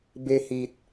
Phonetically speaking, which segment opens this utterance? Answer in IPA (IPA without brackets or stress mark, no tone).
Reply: b